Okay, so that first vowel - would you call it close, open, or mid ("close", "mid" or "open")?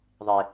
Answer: mid